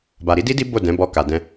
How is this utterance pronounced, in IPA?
b a˨ ɾ i˨˦ d i˦ d i˦ b o˦˨ d ɛ̃˨˦ b ɔ˧ k a˨ d ɛ̃˧

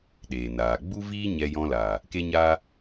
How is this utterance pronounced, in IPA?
ɗ eː˨ n aː˨ ɡ͡b u˦ v iː˦ ɲ ɛ˧ j ɔ̃˧ l aː˨ | k e˦ ɲ aː˦

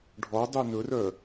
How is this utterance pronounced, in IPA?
ɖʱ ɔ dˤ y n ɵ r œ

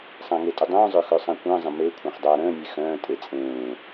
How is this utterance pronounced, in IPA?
sˤ ã ŋ e tʼ ə dˤ œ̃ː zˤ œ x œ sˤ ã kʷ ə̃ː zˤ ə̃ m e kʷʰ ã χ dˤ aː ɾ ə̃ː nʲ e x œ̃ː tʼ e t͡sʼ ẽː

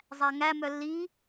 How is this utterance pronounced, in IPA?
zˤ æ ŋ æ m œ lː i

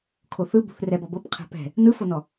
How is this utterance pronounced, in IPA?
kʰ o θ ɯ b ṳ θ r ɛ b ɔ b ɤ p qʰ ɛ̤ p ɛ̤ | n ɯ f o n ɔ

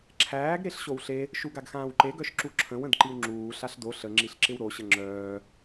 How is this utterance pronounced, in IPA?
ǁʰ æː ɡ ɾ e ɬ ɕ o w ɬ e | ʃ u ɡ a ɡ x ãː w ǃ e ɡ œ ʃ ǁ u ǁʰ ə̃ w ə̃ d ǃ i w ŋ͡ǁ uː ɬ a ɬ d o ɬ ə ŋ͡ǁ i ɬ ǁ ɪ w ɾ o ɕ ə ŋ͡ǁ œː

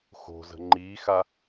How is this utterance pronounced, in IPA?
x o̤ z ə̤ ŋ͡ǃ iː x a

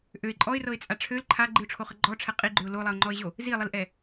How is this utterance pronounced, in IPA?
ʔ ø ɪ̯ ǃʼ ɔ ɪ̯ r ɤ ɪ̯ t͡sʼ a ʈ͡ʂʰ ø l ǃʰ a ɡ͡ǃ i ʊ̯ ʈ͡ʂʰ o χ ə ɡ͡ǃ ɔ ʈ͡ʂʰ ɛ qʼ i ɡ͡ǃ ø ʊ̯ l o lˠ ɛ ʊ̯ ŋ͡ǃ ɔ ɪ̯ ʑ o | z i lˠ i l ʔ ɛ

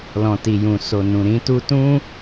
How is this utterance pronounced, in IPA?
l ɔ̃˨ t i˨ j ũ˨ s o˨ n ũ˨ ɾ ĩ˧ t u˧ t ũ˦

